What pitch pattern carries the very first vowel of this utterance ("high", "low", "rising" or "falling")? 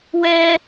high